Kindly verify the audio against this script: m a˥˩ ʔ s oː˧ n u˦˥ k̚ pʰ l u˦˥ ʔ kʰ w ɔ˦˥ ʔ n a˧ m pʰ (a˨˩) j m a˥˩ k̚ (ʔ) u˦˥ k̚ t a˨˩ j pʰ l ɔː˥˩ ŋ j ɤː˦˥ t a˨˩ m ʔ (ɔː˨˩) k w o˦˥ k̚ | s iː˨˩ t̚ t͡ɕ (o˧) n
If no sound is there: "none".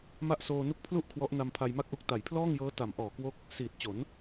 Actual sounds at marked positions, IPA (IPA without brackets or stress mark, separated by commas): a˧, ʔ, ɔː˨˩, o˩˦